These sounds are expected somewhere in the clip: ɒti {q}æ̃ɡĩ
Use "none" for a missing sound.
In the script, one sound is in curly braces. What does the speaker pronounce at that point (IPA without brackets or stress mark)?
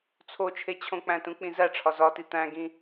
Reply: t̪